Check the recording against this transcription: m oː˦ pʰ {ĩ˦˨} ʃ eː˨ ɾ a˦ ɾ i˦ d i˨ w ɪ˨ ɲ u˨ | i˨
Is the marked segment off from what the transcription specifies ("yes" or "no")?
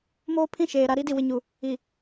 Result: no